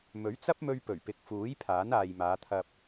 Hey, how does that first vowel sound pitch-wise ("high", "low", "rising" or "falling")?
rising